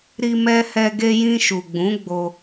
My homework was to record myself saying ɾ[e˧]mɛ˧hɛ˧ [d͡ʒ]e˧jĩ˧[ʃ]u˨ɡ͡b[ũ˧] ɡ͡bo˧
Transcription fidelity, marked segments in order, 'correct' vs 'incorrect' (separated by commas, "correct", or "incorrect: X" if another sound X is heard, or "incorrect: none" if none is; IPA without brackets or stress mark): incorrect: i˧, incorrect: ɡ, correct, incorrect: ũ˨˦